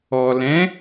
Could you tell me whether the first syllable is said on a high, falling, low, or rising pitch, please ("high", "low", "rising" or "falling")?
low